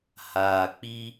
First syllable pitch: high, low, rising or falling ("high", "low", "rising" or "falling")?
low